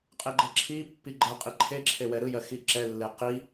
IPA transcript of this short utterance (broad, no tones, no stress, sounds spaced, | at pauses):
qʼ e ɡ͡ǃ ɜ ǁʰ i pː i ɡ͡ǃ ɜ qʼ i ǃʰ e ǁʰ e w ɛ ɾ ɯ j ɜ x i ǁ ɛ lː e q i